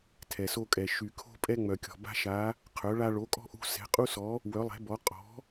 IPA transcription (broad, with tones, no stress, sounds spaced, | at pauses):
tʰ ɛ˨ s o˦ kʼ ɛ˨ ʃ y˨ kʰ o̤˦ pʼ ɛ˦ ŋ͡m œ˨ kʲ ɔ̤˨ b a̤˦ ʃ a˨˦ | qʰ œ˨˦ ɭ a˦ ɭ o˨˦ kʼ ɔ̤˦ ʔ ṳ˦ s ɛ̤˨˦ qʼ u˦ s ɔ˨˦ | w œ˨˦ lˠ ɛ̤˨˦ b ɔ˨˦ qʼ ɔ̤˨˦